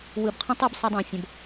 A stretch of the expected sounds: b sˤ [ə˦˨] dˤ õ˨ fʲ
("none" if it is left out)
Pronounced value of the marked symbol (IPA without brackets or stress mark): ə˧